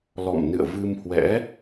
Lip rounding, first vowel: rounded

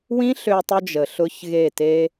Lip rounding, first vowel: unrounded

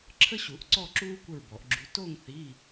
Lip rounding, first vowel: unrounded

